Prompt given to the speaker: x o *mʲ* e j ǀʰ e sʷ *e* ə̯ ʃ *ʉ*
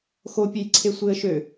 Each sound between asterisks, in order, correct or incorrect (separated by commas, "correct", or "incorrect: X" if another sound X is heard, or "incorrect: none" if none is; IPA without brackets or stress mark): incorrect: pʲ, correct, incorrect: ø